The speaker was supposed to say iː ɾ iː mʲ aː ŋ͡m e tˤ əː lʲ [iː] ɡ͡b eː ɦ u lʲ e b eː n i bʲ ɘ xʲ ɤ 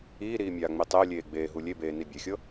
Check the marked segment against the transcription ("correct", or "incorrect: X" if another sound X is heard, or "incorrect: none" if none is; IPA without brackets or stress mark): incorrect: eː